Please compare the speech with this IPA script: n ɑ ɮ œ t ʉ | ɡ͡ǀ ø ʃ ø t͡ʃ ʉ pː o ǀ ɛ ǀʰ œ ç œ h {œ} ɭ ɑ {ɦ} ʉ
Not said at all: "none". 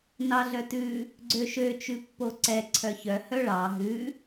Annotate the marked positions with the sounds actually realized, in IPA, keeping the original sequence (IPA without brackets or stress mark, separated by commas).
œ, ɦ